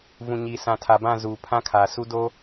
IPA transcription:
v ũ˨ ɲ i˨ s ã˨ tʰ a˨ b ã˦˨ z uː˨ pʰ ã˦ kʰ a˨ s u˦ d o˦

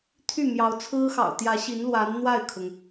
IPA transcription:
t̪ʰ y˥˩ m j ɑ˧˥ ʊ̯ t͡sʰ ɹ̩˥ x ɑ̰˨˩ ʊ̯ t̪ j ä˧˥ ɕ i˧˥ n l w a˧˥ n n̪ w a˥˩ ɪ̯ kʰ ʊ˩ ŋ

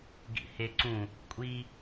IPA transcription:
ɡ ḭ h e ǀ ũ | kʷʼ i

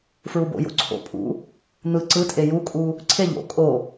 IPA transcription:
f ɹ u b o̰ j o̰ ǀʰ o̰ pʼ ṵ | n̪ ɯ ǀ ɯ tʼ e j u kʼ u | ǀʰ e ʎ o̰ kʼ o

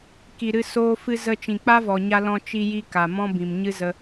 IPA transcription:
k i˨ ɾ ɨ˧ s oː˧ f ɨ˧ z ə˦ t͡ʃ ĩ˨ k͡p a˦ v ɔ˨ ɲ a˧ l ɔ̃˧ t͡ʃ i˧ j i˧ k a˨ m ɔ̃˦ b ĩ˨ m ɲ ɨ˦ z ə˧

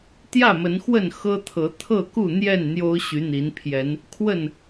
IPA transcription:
t̪ j ä˥˨ m ə˨˦ n x w ə˥˨ n x ɤ˦ t̪ʰ ɤ˨˦ t̪ʰ ɤ˥˨ k u˥˨ n̪ j ɛ˥˨ n n̪ j o˦ ʊ̯ ɕ y˨˦ n̪ i˨˦ n pʰ j ɛ˨˦ n | kʰ w ə˥˨ n

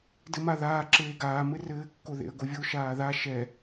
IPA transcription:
d ɘ m a ð aː ǁ eː ɡ aː m ɘ r ɘː kː o ð ḛ ə̯ ɡ o vʲ o ʃ aː ð a ʃ ɛ

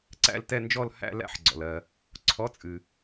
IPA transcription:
ǀ æ̰˥˧ l t ɛ˥˧ n d͡ʒ ɔ˥˧ l h æ̰˥˧ l æ̰˥˧ ħ ɡ͡ǀ ɔ̰˨ l ɜ˨ | ǀʰ ɔ˧˥˧ t͡sʼ ɨ˨

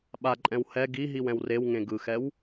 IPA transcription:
ɓ a ǃʼ ɛ̃ w h ɛ ɡ i ɦ i w ɛ̃ w r e w ŋ ẽ ɡ ɯ x ɛ w

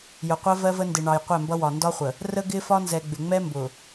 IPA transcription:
j ʊ˨ qʷ ɜ˦ v ɜ˦ v ə˦ n d ɪ˨ ɳ ɑ˨ j qʷ ɛ˦˨ m b ʌ˦ w ɒ˨ n d ɒ˦ χʷ ə˨ | r ə˦ ɡ ɪ˦ f ɒ˦ n z ɛ˨ ɡ͡b ɪ˨ ŋ͡m ɛ˦ m b ʊ˨

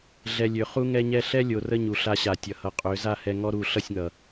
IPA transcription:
ɮ ɛ˨ lʲ ø˨ χ u˧ ŋ ɛ˧ ɲ ɛ˧ ɬ ɛ˦ lʲ o˨ r ə˦ ɲ u˨ ɬ a˧ ɕ a˨ tʲ ʌ˨ h ʌ˨ qʼ ø˨˦ z a˦˨ h ɛ˧ ŋ ɔ˦ ɾ u˦˨ ɬ ʌ˦˨ sʲ ŋ ʌ˨

